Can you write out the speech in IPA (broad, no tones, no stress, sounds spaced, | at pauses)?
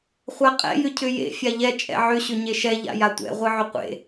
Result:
χʷ a qʼ ɛ̰ j ʏ cʰ ʏ j ḛ fʲ a ʎ ɛ t͡ʃʼ ɛ̰ ʕ ʏ ɕ ʏ ɲ e ʃ ɛ ʎ a̰ j a tʷ ɛ̰ ʁʷ ɨ ʕ ʏ qʷ ḛ